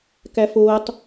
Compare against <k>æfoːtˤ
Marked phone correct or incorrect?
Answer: correct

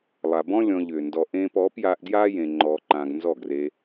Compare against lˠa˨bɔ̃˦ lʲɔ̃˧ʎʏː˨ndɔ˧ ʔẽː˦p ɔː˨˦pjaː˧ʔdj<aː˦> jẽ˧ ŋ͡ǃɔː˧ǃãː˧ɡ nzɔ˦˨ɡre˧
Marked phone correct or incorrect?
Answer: correct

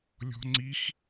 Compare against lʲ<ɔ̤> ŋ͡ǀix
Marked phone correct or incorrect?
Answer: correct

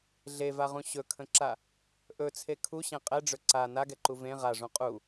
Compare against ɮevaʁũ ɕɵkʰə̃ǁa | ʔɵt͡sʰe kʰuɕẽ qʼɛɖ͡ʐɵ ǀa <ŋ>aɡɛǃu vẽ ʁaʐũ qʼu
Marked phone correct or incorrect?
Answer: incorrect: n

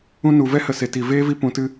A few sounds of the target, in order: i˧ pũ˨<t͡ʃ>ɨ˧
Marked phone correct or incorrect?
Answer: incorrect: t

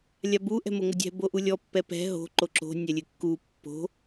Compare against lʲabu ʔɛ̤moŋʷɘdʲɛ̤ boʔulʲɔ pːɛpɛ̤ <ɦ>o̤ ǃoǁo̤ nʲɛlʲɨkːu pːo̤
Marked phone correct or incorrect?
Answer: correct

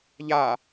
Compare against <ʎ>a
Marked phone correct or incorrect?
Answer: correct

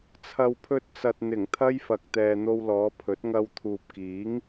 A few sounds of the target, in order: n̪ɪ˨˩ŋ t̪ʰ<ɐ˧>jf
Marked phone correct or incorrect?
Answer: incorrect: ɐ˥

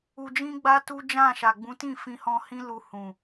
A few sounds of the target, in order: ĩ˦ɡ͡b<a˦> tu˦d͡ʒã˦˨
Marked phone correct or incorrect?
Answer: correct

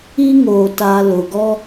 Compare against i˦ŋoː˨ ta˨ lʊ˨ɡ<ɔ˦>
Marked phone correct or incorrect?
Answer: correct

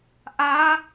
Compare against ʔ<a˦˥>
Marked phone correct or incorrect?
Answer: correct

